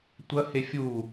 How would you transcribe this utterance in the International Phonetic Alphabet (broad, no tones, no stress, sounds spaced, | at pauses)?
tʷ ɐ h e fʲ u